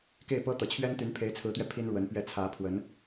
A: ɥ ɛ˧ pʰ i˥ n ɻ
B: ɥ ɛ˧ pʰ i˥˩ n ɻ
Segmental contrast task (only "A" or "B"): A